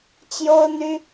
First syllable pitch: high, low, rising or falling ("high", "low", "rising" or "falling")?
high